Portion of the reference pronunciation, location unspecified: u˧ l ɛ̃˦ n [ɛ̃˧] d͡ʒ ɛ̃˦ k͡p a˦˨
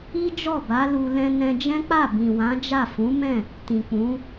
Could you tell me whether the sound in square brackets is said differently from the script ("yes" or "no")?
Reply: no